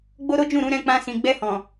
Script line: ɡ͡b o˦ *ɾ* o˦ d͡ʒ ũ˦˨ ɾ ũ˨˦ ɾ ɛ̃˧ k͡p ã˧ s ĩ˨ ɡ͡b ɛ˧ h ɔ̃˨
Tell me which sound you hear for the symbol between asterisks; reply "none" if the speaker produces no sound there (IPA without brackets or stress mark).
ɾ